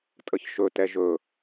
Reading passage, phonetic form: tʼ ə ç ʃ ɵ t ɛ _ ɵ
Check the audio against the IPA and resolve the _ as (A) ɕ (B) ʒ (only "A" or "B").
B